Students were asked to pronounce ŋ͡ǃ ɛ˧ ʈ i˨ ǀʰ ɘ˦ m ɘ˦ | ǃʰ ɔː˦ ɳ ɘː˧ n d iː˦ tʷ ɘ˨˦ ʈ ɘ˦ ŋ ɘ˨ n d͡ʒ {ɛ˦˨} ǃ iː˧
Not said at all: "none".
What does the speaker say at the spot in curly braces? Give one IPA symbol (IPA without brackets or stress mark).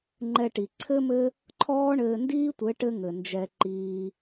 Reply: ɛ˧